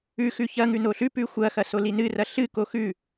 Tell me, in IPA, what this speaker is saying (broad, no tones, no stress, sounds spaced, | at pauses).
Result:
ʉ x ʉ ç ɐ ŋ ʉ n o ɬ ʉ p ʉ xʷ ɐ x ɐ s o l i n ɨ r ɐ ɬ ɨ k o x ʉ